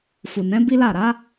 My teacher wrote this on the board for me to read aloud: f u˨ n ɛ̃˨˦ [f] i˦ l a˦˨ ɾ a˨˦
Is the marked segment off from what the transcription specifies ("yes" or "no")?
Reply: yes